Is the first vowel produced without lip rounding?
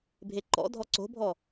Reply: yes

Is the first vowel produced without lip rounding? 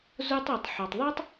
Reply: no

